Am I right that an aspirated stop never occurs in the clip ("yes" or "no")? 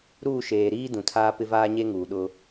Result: no